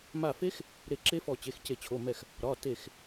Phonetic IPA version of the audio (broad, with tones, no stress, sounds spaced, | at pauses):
m a˧˩ f e˦˥ x | ɾ e˧˩ ǁ e˦˥ f ɔ˧˩ t͡ɕ e˩˧˩ x c e˧˩ t͡ɕʰ o˩˧˩ m ɛ˧˩ x | ɾ ɒ˩˧˩ t e˧˩ x